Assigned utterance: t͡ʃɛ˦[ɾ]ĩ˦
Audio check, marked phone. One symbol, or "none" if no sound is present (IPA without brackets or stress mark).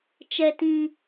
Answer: t